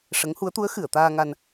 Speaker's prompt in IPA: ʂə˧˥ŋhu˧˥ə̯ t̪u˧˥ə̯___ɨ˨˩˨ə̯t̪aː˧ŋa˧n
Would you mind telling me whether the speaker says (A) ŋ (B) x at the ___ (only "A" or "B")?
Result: B